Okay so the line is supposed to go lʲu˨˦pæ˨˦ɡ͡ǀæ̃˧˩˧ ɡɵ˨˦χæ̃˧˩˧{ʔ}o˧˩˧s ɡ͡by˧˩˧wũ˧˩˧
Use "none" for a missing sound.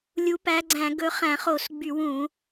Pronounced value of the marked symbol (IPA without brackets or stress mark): χ